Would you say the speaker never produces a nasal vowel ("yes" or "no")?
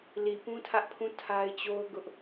no